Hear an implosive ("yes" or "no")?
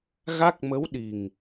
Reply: yes